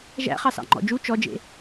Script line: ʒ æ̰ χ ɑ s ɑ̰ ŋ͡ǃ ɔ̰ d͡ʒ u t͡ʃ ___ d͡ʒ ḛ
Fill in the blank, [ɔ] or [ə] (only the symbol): ɔ